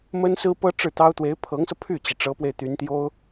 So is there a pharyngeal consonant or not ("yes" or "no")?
no